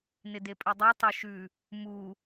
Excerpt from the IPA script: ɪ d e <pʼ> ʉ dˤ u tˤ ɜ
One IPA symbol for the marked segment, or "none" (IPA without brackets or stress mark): pʼ